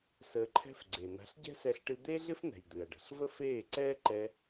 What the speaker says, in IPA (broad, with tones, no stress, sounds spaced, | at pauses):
s əː˧ ǃʰ ɛ̤˦ f ɡ͡ǀ e˨ n̪ a̤˨˦ ɬ ɟ ɛ̤˦ s ɛ˧ ɬ ʈ ɨ˧ d̪ eː˦ ɮ ɪ˦ f n̪ ɛ̤˨ j d̪ ɨ˨ ɐ̯ ɖ ə̤˨ ɬ v ə˦ f eː˦˨ ǀ ɛː˦ ǃ ɛ˧